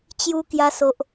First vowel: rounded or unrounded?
rounded